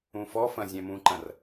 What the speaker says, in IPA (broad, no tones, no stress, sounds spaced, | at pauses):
ũ f ɔ f ɐ̃ zʲ ɛ̃ m ũ ǃ ɐ̃ r